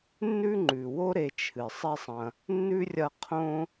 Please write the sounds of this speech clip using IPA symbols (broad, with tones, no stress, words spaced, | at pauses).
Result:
nːʉ˥ŋ͡ǃʉ˩wo˥ ɾe˨t͡ʃʰɨ˩ sˤi˦sˤɐ̃˨ | nːʉ˥rʲɐ˦ qʰõ˦